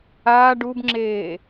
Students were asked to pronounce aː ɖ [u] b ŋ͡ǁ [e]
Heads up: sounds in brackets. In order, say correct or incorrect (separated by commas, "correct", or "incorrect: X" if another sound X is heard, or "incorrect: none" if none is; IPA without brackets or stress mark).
correct, incorrect: eː